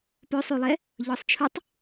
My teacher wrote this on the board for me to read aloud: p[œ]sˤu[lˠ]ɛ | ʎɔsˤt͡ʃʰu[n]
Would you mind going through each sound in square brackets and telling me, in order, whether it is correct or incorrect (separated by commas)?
correct, correct, incorrect